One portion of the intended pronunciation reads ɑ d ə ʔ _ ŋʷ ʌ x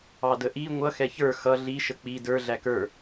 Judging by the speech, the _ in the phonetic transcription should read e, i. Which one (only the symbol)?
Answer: i